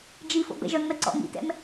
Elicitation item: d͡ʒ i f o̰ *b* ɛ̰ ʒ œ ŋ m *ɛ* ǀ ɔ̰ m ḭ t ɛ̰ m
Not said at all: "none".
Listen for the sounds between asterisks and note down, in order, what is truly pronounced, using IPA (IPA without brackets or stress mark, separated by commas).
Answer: b, ɛ